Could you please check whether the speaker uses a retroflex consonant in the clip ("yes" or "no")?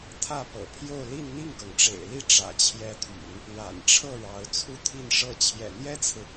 yes